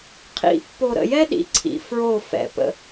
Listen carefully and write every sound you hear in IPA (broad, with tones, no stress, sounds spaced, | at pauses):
qʰ ḭ˨ pː o˨ ɾ ə̰˨ j ɛ˦ ɗ ḭ˨ ǀʰ ḭ˨ f ɹ o˦˨ f ɛ̰˨ p ə̰˦